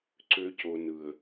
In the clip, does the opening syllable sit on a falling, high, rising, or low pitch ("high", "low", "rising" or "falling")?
high